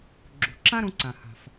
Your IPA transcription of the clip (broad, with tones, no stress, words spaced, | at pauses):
ɡ͡ǁṳ˩ ǁã˥ɾũ˧ǀã˩ ha̤˩f